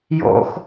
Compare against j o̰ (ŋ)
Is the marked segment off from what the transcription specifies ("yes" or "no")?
yes